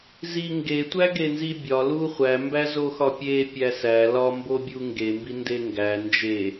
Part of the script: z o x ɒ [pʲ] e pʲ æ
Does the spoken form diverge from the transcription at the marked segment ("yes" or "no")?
no